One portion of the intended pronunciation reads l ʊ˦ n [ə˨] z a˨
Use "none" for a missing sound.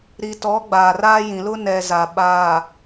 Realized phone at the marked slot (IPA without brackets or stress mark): ɛ˨